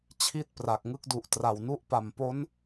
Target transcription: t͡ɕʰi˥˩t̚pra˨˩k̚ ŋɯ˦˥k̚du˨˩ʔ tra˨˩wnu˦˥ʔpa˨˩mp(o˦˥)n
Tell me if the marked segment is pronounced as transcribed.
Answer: yes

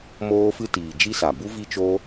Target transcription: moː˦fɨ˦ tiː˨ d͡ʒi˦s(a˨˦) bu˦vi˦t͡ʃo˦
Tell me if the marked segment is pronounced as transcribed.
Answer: no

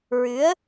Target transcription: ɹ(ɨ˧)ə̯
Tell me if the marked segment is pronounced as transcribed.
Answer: no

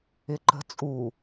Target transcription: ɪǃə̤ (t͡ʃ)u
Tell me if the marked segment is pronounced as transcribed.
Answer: no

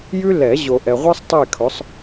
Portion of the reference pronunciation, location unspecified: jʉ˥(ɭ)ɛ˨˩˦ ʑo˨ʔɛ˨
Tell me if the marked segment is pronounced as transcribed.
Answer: no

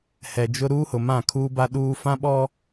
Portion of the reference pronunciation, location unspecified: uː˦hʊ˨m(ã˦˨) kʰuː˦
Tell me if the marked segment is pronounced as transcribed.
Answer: yes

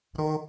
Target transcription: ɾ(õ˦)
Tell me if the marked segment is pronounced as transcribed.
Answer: no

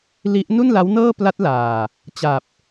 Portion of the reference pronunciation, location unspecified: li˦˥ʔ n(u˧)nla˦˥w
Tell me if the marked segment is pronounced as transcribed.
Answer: no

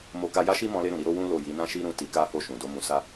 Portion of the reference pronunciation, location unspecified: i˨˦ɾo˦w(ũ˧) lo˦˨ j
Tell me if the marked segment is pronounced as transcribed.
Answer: no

